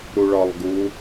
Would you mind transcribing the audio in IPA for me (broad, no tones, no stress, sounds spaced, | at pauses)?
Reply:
ɾ u ɭ ɒ lˠ ɡ u